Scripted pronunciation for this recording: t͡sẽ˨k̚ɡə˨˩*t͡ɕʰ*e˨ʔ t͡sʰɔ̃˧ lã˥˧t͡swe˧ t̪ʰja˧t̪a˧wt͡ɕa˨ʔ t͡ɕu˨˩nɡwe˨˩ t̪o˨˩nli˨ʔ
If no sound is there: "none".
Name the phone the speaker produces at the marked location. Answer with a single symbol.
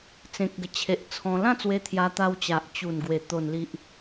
t͡ɕʰ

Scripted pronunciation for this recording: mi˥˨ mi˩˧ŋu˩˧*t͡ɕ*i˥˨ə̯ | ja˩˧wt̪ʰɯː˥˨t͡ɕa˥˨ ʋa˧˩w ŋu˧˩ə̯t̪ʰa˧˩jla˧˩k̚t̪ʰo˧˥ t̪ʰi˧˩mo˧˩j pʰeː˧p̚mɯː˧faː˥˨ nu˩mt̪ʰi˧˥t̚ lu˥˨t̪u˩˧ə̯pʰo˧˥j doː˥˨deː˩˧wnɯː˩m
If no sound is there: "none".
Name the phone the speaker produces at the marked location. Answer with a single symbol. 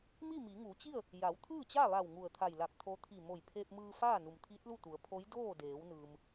t͡ɕ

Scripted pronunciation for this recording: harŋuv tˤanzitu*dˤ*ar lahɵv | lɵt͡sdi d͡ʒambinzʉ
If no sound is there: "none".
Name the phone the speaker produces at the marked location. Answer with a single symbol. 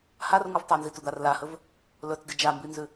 d̪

